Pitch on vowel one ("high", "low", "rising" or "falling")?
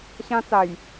high